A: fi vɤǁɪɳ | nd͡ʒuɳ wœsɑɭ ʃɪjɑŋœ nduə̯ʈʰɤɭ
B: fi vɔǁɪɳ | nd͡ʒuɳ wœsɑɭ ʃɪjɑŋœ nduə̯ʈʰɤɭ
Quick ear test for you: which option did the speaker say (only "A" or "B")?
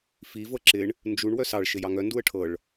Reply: A